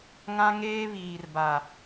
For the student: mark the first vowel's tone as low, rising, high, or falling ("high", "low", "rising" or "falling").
high